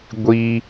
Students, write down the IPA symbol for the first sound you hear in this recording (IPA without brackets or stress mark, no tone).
ɡʷ